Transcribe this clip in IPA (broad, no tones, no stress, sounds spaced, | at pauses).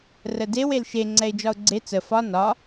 r ə d e w e l ʃ e ŋ͡ǀ ɛ ɪ̯ d͡ʒ ɒ ʊ̯ ɡ͡ǀ e t͡s ə f ɒ n ɒ